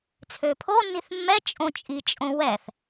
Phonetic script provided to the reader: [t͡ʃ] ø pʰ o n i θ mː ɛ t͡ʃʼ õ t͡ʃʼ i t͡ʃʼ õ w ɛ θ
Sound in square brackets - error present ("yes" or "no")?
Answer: yes